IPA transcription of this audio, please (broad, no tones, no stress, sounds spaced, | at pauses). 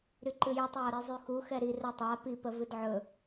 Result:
ɾ y ǃ ɨ j y tˤ j ɒ ɾ i zˤ y x u x ɛ ɾ i r ɛ tˤ a p i p ə v ɨ d ʕ ɵ